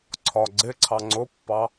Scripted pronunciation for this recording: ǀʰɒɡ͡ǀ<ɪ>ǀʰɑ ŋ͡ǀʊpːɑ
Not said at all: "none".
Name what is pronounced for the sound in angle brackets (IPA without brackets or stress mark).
ɪ